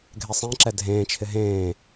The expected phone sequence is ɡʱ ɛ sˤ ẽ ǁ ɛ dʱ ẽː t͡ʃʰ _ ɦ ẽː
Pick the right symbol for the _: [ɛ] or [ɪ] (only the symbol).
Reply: ɪ